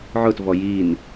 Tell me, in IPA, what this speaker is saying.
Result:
ʕ ʊ t v ɔ j i n

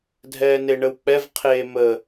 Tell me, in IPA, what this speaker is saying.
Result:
dʱ ɛː n e ɳ ə w k͡p ɛ v qʰ eː m ə

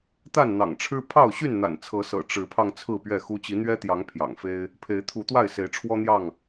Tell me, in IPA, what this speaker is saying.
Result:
t̪ a˥˨ n n̪ ɑ̰˨˩ ŋ ʈ͡ʂʰ ɻ̩˦ pʰ ɑ˥˨ ʊ̯ ɕ y˥˨ n n̪ a̰˨˩ n t͡sʰ ɤ˨˦ s ɤ̰˨˩ ʈ͡ʂ ɻ̩˨˦ pʰ ɑ˧ ŋ t͡sʰ ɹ̩˥˨ p ɥ ɛ˥˨ x u˦ t͡ɕ i˨˦ n̪ ɥ ɛ˦ t̪ j ɑ˨˦ ŋ pʰ j ɑ̰˨˩ ŋ f e˦ ɪ̯ | pʰ e˨˦ ɪ̯ t̪ʰ u˨˦ t̪ w a˥˨ ɪ̯ s e˨˦ ɪ̯ ʈ͡ʂʰ w ɔ˦ n̪ j ɑ˥˨ ŋ

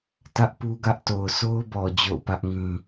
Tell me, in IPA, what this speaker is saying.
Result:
t ä˦ ʔ p u˦ ɡ ä˦ ʔ t o˨ ʊ̯ s o˦ ʊ̯ b ɔ˨ d͡ʑ o̰˦˨ ʊ̯ p ä˦ ʔ ŋ ĩ˦

